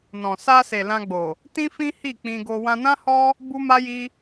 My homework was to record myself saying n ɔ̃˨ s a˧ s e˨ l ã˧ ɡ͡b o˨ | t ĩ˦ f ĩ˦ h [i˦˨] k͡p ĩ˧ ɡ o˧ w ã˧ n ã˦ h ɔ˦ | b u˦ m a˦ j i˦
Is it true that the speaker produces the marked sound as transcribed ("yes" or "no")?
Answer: yes